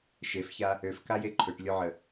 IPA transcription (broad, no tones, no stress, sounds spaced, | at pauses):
ʃ e f ç a | ø f k a j e ǃʰ ø ʈ lʲ o ʕ ə